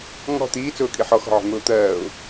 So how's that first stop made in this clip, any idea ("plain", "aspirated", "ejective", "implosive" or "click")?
plain